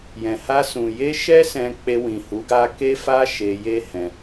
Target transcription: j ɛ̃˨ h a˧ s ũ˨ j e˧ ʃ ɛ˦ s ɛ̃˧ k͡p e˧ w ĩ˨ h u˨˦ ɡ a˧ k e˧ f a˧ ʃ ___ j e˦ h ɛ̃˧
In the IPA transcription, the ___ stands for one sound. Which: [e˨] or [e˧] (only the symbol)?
e˧